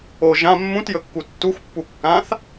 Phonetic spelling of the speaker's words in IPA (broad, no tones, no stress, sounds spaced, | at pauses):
o ʒ ã mː ũ t j ɵ kː u tː u x pː u kː ã θ